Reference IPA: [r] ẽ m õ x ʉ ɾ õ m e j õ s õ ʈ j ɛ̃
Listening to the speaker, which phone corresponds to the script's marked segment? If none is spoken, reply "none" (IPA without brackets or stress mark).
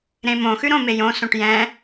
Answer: ɾ